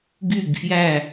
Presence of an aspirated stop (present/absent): absent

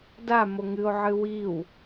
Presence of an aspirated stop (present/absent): absent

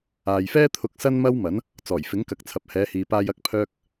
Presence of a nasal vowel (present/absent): absent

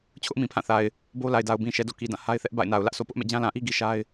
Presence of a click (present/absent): absent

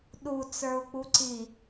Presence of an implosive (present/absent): present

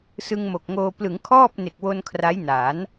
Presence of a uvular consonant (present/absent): absent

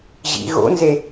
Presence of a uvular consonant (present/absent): absent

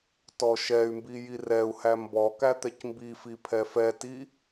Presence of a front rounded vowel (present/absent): present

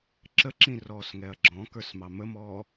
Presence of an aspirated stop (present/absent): absent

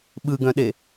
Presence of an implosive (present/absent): present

